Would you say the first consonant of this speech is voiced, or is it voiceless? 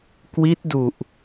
voiceless